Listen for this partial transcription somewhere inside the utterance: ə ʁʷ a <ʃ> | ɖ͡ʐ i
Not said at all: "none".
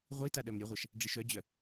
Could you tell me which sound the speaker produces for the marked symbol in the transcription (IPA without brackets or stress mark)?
ʃ